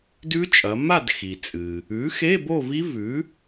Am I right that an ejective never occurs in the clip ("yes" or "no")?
no